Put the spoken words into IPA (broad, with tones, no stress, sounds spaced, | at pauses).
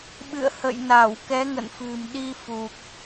ɓ ɨ̰˧˨ ə̯ h ə̰˧˨ j n a˧˩ w k ɛ˨˦ ŋ ə̰˧˨ n f ɨ̤˨˩ m ɗ i˧ f u˨˩ k̚